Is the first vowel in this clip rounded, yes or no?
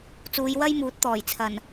yes